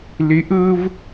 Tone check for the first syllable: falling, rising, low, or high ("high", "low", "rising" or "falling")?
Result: rising